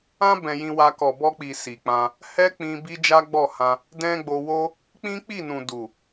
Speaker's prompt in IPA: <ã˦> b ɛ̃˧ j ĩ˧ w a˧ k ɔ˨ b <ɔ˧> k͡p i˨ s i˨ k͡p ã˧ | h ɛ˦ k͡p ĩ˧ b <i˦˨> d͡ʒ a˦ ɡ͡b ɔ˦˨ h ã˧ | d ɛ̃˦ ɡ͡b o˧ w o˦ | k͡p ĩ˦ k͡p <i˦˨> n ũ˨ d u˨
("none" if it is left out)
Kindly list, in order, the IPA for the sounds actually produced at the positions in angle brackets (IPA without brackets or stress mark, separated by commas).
ã˦, ɔ˧, i˦, i˦˨